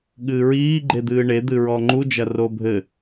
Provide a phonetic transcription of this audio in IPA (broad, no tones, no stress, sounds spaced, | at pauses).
ɠ ɨː ɹ iː ɡ͡ǃ e d̪ ɨː ɳ e d̪ ɨ ɹ ɔ ŋ͡ǃ u d͡ʒ ɐ r o bʱ ɘ